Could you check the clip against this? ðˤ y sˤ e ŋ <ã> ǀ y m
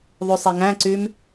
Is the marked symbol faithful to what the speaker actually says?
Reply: no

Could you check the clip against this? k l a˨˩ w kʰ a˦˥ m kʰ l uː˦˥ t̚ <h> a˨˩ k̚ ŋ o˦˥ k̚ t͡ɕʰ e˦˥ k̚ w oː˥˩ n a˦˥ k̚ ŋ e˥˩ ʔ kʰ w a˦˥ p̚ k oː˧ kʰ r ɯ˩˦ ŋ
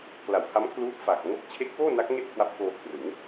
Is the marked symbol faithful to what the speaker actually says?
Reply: no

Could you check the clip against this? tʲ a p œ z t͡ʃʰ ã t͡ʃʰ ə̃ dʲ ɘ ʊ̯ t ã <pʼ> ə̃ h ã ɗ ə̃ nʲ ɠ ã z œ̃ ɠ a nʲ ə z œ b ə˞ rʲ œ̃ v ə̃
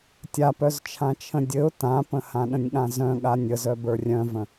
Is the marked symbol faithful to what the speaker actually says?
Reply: no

